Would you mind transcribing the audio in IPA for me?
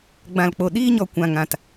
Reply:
ɡ͡b ã˨ l k͡p o˨ ɗ iː˧ ɲ ɔ˨ kʷ ã˨ ŋ ã˨ t

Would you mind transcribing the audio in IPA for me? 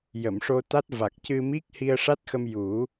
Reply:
j ə˨˩˨ m ʂ o˧ t̪ a˦˥ t̚ v a˨˩ k̚ c ɨ˧ m i˦˥ k̚ h i˧ ə̯ ʂ a˦˥ t̚ x ə˧ m j u˨˩˦

